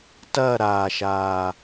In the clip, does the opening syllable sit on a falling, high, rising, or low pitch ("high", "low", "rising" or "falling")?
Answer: falling